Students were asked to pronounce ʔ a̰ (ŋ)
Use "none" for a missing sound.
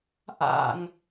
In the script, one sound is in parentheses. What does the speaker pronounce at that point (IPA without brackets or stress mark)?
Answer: ŋ